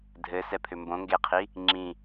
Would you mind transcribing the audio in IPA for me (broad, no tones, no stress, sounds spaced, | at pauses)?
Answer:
dʱ ɘ s ɛ pʰ ʏ m b õ ŋ ɡ e qʰ i | ŋ͡ǁ ĩ